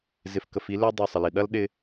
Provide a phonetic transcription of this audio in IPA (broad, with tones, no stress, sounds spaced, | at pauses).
z ɪ˨ f k ə˨ f i˨˦ l ø˧ dˤ ø˨ sˤ ə˨ l i˨ ɗ ɐ˦ l ɗ ɪ˧